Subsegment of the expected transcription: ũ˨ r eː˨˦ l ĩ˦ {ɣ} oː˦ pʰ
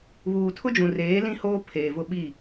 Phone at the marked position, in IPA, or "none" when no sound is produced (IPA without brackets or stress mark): h